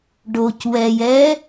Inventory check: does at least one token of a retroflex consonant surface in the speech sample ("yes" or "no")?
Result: yes